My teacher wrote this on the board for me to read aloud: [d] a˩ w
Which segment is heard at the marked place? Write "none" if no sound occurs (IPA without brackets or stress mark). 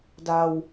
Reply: d